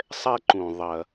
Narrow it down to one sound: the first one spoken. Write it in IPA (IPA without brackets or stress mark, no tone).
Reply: sˤ